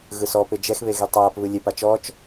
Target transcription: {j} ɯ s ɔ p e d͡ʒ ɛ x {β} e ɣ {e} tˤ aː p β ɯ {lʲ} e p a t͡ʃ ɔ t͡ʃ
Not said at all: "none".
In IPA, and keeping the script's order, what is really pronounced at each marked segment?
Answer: ɣ, β, e, lʲ

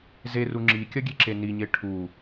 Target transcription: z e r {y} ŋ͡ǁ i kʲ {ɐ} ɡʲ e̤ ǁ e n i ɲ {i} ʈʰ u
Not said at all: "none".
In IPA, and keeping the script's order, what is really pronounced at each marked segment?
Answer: u, ɐ, e

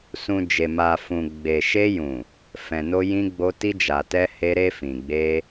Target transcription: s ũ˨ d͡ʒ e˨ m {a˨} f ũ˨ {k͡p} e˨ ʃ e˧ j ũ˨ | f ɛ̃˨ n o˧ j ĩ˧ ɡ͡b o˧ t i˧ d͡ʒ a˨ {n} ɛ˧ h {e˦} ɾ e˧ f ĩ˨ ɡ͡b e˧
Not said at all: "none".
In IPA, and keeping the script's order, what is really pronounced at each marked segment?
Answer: a˨, ɡ͡b, t, e˧

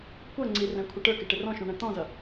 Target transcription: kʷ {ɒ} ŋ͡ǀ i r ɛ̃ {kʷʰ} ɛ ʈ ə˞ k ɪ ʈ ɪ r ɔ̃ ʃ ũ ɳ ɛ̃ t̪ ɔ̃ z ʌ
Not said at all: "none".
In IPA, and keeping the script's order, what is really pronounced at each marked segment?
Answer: ʌ, kʷʰ

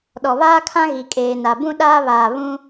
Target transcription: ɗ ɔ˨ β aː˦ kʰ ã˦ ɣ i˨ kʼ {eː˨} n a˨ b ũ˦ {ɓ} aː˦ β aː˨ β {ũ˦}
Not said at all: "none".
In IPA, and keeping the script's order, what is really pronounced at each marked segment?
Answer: eː˨, ɗ, ũ˦

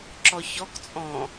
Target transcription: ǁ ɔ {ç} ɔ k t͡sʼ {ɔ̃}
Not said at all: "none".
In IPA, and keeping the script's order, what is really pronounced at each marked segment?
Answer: ç, ɔ̃

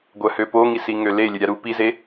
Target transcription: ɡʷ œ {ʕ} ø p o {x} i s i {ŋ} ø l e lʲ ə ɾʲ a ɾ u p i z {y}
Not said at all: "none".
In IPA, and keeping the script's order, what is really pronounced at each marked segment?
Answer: h, ŋ, ŋ, e

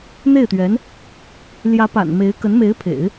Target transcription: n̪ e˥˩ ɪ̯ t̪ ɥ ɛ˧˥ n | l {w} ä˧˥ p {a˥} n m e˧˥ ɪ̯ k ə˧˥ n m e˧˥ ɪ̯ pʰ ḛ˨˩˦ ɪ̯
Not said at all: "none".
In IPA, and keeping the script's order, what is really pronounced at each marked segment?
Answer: j, a̰˨˩

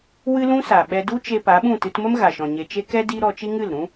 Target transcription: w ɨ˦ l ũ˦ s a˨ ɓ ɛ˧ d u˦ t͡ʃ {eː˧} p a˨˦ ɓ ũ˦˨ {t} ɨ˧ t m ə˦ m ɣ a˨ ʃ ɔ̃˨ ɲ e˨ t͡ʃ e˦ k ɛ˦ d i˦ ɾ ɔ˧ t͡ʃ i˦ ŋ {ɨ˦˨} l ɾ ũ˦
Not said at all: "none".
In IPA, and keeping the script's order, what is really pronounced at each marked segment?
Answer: e˧, t, ɨ˦˨

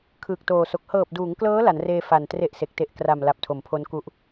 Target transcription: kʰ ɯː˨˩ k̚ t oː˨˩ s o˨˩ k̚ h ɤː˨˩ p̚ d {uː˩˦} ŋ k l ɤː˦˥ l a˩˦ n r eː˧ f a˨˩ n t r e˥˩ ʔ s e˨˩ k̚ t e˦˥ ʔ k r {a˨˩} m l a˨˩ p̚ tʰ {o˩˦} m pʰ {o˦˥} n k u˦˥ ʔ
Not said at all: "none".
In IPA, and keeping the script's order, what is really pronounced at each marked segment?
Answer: uː˩˦, a˨˩, o˩˦, o˦˥

